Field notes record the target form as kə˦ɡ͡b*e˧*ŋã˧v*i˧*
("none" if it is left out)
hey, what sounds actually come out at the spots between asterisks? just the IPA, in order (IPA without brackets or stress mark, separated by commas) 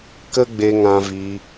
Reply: e˧, i˧